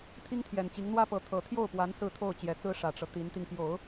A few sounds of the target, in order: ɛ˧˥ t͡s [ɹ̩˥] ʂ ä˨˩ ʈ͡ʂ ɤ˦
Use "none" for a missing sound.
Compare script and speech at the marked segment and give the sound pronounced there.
ɹ̩˥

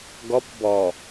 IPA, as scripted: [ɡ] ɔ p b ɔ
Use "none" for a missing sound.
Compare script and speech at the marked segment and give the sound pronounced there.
ɡ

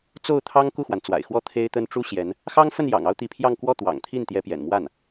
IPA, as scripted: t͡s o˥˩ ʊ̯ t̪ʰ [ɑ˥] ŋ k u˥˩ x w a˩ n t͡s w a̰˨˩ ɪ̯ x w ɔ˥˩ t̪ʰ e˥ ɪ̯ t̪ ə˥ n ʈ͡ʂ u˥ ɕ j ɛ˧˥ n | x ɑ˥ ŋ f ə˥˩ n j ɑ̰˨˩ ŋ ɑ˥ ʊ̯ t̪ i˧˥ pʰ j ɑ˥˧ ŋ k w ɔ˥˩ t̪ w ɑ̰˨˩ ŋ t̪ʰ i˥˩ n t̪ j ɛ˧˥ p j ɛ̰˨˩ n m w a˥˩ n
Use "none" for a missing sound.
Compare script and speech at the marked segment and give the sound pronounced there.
ɑ˥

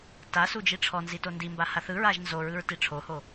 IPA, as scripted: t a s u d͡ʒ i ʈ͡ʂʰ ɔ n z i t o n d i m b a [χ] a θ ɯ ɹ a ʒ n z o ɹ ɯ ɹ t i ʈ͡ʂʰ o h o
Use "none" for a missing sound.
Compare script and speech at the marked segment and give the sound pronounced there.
h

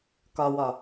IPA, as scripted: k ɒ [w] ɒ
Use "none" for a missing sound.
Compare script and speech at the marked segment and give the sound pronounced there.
w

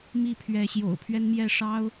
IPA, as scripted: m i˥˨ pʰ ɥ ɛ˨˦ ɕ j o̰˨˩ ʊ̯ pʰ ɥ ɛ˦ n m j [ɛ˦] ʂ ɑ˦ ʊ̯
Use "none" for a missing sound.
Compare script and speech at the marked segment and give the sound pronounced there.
ɛ˥˨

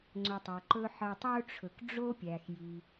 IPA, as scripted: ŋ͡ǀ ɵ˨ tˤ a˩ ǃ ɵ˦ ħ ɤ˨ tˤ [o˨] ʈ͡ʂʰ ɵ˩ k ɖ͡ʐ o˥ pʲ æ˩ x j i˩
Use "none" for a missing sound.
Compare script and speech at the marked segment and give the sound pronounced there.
o˥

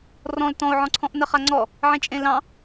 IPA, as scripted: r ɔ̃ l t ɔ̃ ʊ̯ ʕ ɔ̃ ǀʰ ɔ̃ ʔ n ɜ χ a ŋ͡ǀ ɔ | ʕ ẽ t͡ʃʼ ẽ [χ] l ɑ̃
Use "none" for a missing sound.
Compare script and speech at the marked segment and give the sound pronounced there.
none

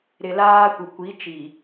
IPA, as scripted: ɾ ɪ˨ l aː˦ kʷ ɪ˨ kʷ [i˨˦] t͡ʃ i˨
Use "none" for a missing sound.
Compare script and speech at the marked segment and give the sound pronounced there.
i˨˦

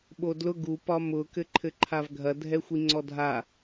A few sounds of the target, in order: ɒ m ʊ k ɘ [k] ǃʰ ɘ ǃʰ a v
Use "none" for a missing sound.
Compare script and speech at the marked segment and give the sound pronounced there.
none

